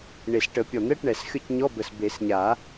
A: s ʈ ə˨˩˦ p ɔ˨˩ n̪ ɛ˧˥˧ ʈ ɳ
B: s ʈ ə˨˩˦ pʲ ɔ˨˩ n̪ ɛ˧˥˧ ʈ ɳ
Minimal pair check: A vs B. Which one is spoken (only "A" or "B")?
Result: B